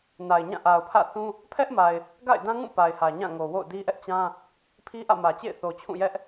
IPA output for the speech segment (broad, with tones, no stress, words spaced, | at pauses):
na˨ɪ̯ɲã˦˨ ʔa˨ʊ̯pʰä̰˦˨θũ˦ | pʰɛ˦ʔ ma˨ɪ̯ | ɡa̰˦˨ɪ̯dã˦ŋũ˦˨ pa˨ɪ̯hä˨ɲã˦˨ŋo˨ wo̰˦˨ʊ̯di˦ʔɛ˦ʔt͡ɕã˦ | pʰi˦ʔä̰˦˨mä˨t͡ɕḛ˦˨ɪ̯ θo˨t͡ɕʰũ˦˨jɛ˦ʔ